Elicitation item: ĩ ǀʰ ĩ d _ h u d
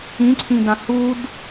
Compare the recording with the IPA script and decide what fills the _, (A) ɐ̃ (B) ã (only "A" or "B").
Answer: B